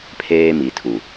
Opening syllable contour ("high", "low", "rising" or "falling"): high